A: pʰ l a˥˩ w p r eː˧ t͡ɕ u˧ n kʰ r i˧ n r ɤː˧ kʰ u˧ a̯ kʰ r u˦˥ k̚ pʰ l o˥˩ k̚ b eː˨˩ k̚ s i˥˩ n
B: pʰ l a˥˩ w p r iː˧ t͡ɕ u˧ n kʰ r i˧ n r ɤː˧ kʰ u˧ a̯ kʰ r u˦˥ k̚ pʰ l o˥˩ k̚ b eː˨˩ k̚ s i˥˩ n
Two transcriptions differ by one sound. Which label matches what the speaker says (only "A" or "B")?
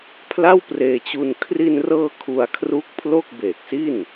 A